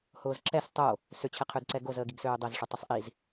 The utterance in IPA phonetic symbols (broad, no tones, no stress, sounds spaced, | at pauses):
h ʊː z ǁ ɛ s tˤ o | s ʏ t͡ɕʰ ɛ qʰ ø d ǀ ɛ ɡ o z əː ɡ i ɡ s øː dˤ ɛ z ʂ ʊ tˤ ʊ sˤ ʔ i z